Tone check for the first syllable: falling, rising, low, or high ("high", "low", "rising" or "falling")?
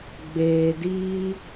low